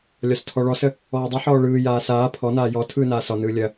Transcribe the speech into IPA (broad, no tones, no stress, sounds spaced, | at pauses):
lʲ ɒ s tʰ ɔ ɭ ɔ s ə | ɔː dˤ ɯ ħ ɔː ɭ ɯː j aː s aː pʰ ɔ n aː j ɔ tʰ ɯː n aː s ɒ n ɯː lʲ ɐ